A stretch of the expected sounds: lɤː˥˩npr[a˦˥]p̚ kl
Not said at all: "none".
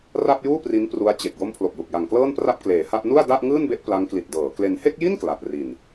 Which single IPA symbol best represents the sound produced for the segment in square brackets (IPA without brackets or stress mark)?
a˥˩